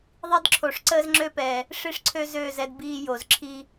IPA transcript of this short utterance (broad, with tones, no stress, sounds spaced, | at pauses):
ðˤ i˦ d ǁʰ o˨ ʂ ǀ əː˦ z ŋ͡ǁ ø˦ p ɛː˨ | ʂ i˦ ʂ ǀʰ ø˦ z øː˦˨ z ɛ˦ d b iː˦ j o˨ z ǁʰ i˦